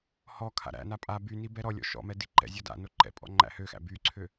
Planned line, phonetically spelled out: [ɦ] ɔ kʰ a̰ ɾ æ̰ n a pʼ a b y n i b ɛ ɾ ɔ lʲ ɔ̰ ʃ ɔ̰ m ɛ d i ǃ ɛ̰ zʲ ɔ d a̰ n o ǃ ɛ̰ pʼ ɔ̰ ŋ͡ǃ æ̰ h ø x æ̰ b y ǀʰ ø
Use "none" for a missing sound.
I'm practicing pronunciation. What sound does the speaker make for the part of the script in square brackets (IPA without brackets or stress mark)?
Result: h